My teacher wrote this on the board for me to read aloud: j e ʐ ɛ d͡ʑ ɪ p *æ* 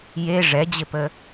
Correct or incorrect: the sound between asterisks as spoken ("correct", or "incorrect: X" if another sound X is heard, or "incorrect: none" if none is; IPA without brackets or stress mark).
incorrect: ə